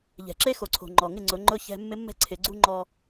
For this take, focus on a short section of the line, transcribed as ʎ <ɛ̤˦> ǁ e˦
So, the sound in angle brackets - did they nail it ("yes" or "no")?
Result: no